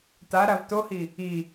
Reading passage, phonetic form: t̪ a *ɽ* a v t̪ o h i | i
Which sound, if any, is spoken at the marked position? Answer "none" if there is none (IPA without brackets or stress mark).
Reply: ɾ